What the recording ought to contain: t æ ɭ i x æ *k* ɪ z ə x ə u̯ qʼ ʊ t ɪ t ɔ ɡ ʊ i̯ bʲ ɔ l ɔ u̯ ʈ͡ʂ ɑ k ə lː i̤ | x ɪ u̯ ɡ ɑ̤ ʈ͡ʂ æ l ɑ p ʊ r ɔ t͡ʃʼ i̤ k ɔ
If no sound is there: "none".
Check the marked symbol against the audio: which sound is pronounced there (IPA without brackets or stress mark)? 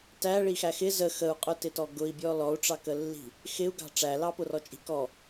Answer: x